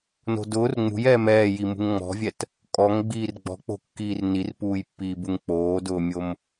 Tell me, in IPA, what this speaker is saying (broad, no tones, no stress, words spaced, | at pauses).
no̤dʊːr ŋ͡mṳjɛːm ɛːji mṳŋŋ͡mɔ̤vʲɛt | kʼɔŋɡ͡biːr ɡ͡bɔ̤k͡po̤kːiːr nirpuːjpːiːbuŋ k͡poːdʊːmʲom